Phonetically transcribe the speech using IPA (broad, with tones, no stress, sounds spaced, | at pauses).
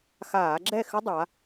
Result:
x aː˧˩˧ ɡ͡ǁ ɛ˥˨ x ʏ˦˥ dˤ a˩˧